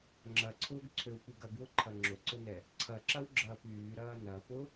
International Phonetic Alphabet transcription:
ŋ͡ǁ ɐ ǀʰ ʊː ɡ ǀʰ ø w p y ɡ ɐ ɡ w ʊ ǃʰ ɐ ŋ͡ǁ ʊ ǀ ʊ n ɛ | ǀʰ ɐ ǁ ɐ w ɡ͡ǁ ɐː p yː ɾ ɐː n ɐ p ʊ

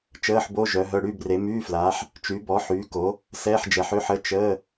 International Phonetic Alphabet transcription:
t͡ʃ əː˧˥˧ ħ b o˧˥˧ ʒ œ˨˦ ɦ œ˧˥˧ ɽ y˧˥˧ b r e˨˦ m yː˧˥˧ f l aː˨˦ ħ | t͡ʃ y˨˦ b ɔ˨˦ ħ yː˨˦ k o˨˦ | s ɛː˧˥˧ ħ d͡ʒ ɛ˨˦ ħ ø˧˥˧ ħ ə˧˥˧ t͡ʃ əː˧˥˧

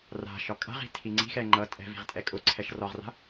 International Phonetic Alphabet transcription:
r a̤ ʃ ɒ kʼ a̤ ʁ i̤ tʰ i ŋ͡ǀ i̤ x ɛ ŋ͡ǃ ʌ tʼ ɛ̤ v i̤ ʁ tʼ ɛ kʼ ʊ ǀʰ ɛ ʃ r ɒ ʁ r a̤

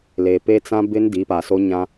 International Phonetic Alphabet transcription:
l eː˨ p e˦ t͡s ã˦ b ɪ˦ n d i˨˦ p a˨ s o˦ ɲ ã˦

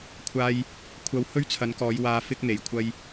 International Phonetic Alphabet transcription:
kʷʰ aː˧ j | kʷʰ ɐ˨˧ w h ɵ˥ ɥ t͡sʰ ɐ˨˧ n k ɔː˨˧ j w aː˧ f ɪ˥ k̚ n̪ e˨˩ j kʷʰ ɐ˧ j

